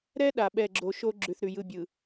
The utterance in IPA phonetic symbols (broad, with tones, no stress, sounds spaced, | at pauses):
ɾ ɛ˦ ɗ a˨ ɓ ɛ˦˨ ɡ͡ǁ o˨ ʃ o˦ ɡ͡ǁ ʉ˨ θ ɾ ʉ˨ j ɯ˦˨ bʲ ɯ˨